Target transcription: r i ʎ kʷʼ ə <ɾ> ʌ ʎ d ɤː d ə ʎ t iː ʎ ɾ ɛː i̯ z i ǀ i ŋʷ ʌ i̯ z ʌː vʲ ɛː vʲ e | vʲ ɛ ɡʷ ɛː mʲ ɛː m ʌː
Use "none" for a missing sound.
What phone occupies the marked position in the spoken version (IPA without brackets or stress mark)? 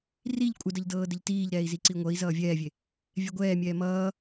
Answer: d